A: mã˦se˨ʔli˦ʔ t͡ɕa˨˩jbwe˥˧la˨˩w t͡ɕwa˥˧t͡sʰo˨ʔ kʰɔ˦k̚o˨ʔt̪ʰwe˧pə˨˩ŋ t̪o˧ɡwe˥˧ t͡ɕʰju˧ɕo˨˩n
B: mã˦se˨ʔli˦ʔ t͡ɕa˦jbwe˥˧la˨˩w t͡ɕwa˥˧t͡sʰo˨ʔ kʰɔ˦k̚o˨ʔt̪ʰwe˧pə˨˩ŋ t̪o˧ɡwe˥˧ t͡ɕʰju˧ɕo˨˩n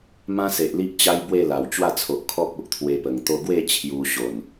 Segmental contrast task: B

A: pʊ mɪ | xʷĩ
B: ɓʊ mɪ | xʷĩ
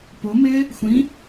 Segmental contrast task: A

